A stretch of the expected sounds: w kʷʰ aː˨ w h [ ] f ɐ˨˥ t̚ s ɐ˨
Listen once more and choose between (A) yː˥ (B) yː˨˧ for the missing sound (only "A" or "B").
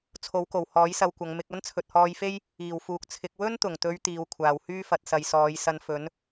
A